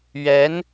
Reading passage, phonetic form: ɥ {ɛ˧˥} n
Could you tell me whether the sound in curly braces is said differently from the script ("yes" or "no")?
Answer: no